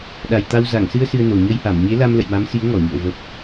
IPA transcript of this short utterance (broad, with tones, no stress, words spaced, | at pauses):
ɗa˨˩jt̪a˧w za˧˩ŋsɨ˧ə̯ sɨ˧ə̯no˨˩ ɲə˧jha˧˩m ɲe˨˦la˧m lə̰˧˨jma˨˦msi˨˦ə̯ ŋɔ˧˩ɲṵ˧˨ə̯ və˨˩p̚